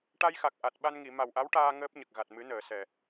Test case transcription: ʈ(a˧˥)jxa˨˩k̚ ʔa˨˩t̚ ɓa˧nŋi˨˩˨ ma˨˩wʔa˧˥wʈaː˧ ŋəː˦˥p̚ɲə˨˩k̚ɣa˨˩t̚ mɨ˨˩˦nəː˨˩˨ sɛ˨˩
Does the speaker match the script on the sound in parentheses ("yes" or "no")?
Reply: no